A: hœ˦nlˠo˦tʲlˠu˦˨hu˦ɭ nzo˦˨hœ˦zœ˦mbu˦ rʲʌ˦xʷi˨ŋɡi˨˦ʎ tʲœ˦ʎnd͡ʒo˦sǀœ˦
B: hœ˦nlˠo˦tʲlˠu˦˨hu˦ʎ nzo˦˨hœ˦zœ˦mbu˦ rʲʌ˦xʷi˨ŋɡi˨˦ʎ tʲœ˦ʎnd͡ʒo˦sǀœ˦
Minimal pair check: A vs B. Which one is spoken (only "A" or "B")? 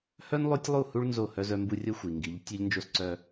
A